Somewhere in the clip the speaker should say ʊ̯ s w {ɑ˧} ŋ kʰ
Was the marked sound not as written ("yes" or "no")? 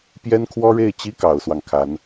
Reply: no